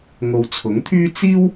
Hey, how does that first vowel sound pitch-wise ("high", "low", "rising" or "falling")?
low